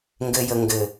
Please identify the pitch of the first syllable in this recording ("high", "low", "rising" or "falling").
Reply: low